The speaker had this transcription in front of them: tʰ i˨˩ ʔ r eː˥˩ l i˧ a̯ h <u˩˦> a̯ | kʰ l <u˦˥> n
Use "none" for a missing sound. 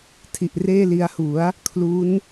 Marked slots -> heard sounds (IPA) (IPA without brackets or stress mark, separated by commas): u˩˦, u˦˥